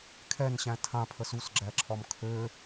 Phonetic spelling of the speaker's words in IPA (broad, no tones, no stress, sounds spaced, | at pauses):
kʰ ɛ n ɕ æ̃ tʰ ã pʰ ə s u s ɡ͡ǁ æ ǁʰ ɒ m kʰ ø